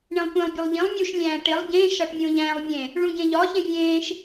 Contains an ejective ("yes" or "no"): no